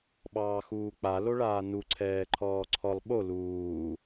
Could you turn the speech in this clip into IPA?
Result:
ɓ ɑː x uː k͡p a l o ɭ aː n u ǀʰ ɛː ǃʰ ɔː ǀʰ ɔ lˠ ɓ o l uː

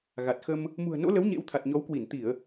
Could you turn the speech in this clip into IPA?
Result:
ɣ a˨˩ t̚ x ə˧ m | m ṳ˨˩ ə̯ n o̰˧˥ l ə˨˦ w ɲ ḛ˧˥ w t̪ʰ a˨˩ t̚ ɲ ɔ˨˦ w k w i˧˩ n t̪ i˧˩˨ ə̯

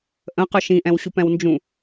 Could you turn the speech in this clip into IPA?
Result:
ʔ ə̃ q œ ʃ ĩ ʔ ɛ̃ w ɕ u p ɛ̃ w n d͡ʒ ũ

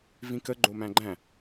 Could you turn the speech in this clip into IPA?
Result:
v ĩ k ə ɡ͡ǃ o m æ̃ ɡ͡ǃ æ̃

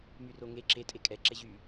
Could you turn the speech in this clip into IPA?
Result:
m y r o ŋ e ǁ e tʼ e kʼ ɛ ǁ ɛ ʑ y

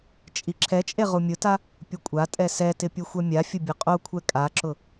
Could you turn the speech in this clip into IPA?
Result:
t͡ʃʼ i ǁʰ ɛ t͡ʃʼ e ʁ u mʲ ʊ t a | pʲ ʊ kʷʼ a tʼ ɛ s ɛ t ɪ pʲ u xʷ ɛ mʲ a fʲ ʊ bʲ ʊ qʼ o kʷʰ ɛ kʼ a ǁ ʊ

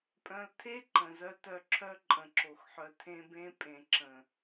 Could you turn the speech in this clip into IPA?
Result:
pʼ œ̃˧ l tʰ e˦ ǃ ə̃˨ z œ˧ t œ˧ ǁʰ œ˦ ǃʼ ə̃˨ ǁ o˨ x ħ œ˨ tʰ ẽ˧ b ẽ˧ pʼ ẽ˨ ǁ ə̃˨

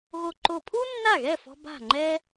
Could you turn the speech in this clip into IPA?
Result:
ɣ o˧ ǃ o˧˩ pʰ u˥ nː a˥˩ ɣ ɛ˥˩ f ɔ̤˧ b a̤˥˩ ŋ͡ǃ ɛ˥

